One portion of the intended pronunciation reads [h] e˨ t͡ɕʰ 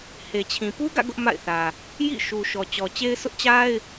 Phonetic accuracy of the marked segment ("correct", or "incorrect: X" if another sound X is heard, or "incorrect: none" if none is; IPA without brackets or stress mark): correct